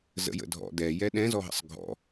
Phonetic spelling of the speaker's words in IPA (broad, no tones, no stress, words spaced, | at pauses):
zə̰jə̰dʱɔ̰ dɛjɛ ɗɛ̃zɔɦə̰sˤ ɡʱɔ̰